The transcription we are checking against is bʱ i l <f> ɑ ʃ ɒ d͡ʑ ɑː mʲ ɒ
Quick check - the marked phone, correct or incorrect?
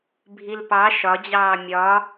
incorrect